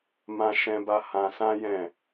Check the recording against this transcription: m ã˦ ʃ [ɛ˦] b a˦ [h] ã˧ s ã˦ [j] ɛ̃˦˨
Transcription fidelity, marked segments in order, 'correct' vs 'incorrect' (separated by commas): incorrect, correct, correct